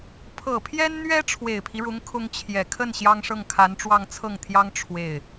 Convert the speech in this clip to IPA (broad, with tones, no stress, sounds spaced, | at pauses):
pʰ ɤ˨˩ pʰ j ɛ˥ n n̪ ɥ ɛ˥ ʈ͡ʂʰ w e˨˩ ɪ̯ pʰ i˦ ɻ ʊ˧˥ ŋ kʰ ʊ˥ ŋ t͡ɕʰ j ɛ˨˩ kʰ ə˥˩ n ɕ j ɑ˥ ŋ ʂ ɤ˥˩ ŋ kʰ a˧˥ n ʈ͡ʂ w ɑ˥˧ ŋ t͡sʰ ɤ˥˩ ŋ t̪ʰ j ɑ˥ ŋ ʈ͡ʂʰ w e˥˩ ɪ̯